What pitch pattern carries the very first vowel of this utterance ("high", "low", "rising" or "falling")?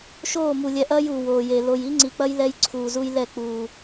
falling